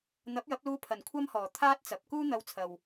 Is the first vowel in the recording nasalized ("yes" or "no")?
no